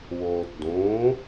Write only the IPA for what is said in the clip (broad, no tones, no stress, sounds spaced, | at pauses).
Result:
w oː t d õ